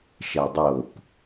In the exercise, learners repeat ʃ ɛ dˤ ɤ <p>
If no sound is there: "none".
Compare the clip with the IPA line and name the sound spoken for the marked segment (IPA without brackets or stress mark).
p